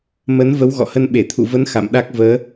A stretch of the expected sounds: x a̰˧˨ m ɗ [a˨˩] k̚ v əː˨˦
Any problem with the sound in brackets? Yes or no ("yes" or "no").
yes